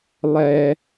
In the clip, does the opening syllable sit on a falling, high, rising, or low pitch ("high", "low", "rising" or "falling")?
low